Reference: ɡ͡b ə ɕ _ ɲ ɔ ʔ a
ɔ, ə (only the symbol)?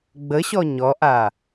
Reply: ɔ